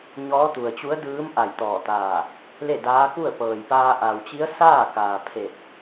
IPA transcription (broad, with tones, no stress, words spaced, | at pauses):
ɲɔː˧˥ t̪u˩ə̯t͡ɕu˧˥ə̯dɯː˧˥m ʔa˧˩jt̪ɔː˧˩t̪aː˧˩ | le˥˨daː˧˥ku˥˨ə̯ pɤː˩jpaː˧ ʔa˩wt͡ɕi˧˥ə̯ saː˥˨kaː˩pʰe˧˩t̚